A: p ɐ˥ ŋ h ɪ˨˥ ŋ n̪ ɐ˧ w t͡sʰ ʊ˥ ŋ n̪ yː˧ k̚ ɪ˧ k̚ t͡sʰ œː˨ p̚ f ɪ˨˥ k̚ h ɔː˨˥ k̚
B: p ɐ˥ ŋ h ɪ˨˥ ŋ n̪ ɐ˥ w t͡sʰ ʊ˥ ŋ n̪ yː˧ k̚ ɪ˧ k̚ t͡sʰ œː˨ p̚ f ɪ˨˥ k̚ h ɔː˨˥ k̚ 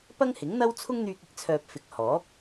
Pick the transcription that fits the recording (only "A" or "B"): B